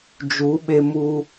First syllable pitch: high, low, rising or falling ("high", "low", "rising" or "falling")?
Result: rising